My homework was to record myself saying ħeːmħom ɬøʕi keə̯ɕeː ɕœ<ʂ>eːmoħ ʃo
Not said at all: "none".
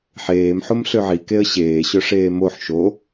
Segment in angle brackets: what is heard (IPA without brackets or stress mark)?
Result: ʂ